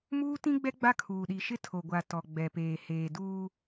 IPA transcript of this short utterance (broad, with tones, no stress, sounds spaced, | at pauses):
m uː˦ t ĩ˦ ɡ͡b ɛ˦ ɡ͡b a˦ kʰ uː˨ ɗ i˨ ʃ ɪ˦ tʰ o˨ ɡʷ a˨ t ɔ˨ ɡ͡b ɛ˨ p eː˨ h eː˨ d uː˦